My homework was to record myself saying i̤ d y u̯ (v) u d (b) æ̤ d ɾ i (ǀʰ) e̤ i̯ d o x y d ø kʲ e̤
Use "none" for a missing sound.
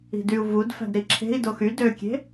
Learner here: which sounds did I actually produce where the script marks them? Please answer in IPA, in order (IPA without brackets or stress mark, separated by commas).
v, f, ǁʰ